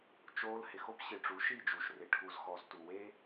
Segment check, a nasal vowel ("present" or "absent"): absent